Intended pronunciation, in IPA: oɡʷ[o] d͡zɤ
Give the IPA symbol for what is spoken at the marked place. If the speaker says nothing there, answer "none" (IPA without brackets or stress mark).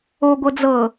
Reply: ɤ